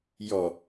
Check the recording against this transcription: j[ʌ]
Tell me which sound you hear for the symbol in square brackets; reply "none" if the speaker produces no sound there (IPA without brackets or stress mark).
ɔ